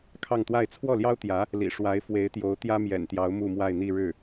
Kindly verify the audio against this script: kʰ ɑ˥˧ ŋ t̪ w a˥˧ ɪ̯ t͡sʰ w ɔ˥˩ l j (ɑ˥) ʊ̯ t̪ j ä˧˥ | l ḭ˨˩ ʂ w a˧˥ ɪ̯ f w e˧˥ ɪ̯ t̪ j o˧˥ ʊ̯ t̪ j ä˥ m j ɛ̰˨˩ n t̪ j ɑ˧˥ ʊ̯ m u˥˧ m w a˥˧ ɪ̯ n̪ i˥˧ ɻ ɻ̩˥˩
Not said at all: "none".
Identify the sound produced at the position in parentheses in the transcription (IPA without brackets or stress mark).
ɑ˥